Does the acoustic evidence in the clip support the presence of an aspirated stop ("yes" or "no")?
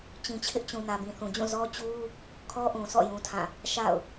yes